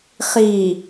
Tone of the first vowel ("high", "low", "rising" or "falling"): low